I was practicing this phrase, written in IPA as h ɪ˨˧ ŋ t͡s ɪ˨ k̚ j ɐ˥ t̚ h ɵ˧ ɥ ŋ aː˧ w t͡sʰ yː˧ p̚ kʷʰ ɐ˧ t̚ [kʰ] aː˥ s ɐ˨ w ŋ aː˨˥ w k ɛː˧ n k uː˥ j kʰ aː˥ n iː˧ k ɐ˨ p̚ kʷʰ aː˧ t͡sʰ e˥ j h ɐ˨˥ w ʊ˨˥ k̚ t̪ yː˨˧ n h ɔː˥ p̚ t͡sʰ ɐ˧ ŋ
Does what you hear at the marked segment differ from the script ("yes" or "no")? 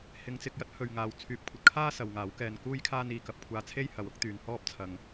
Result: no